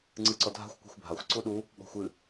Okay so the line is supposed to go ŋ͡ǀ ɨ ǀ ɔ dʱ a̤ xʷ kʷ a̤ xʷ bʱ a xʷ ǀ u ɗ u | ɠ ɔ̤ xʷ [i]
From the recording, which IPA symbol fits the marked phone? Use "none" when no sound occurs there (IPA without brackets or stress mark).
ɨ